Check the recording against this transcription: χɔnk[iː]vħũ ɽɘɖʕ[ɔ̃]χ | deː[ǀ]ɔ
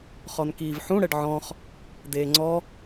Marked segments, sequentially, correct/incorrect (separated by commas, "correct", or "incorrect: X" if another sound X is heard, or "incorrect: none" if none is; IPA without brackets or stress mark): correct, correct, incorrect: ŋ͡ǀ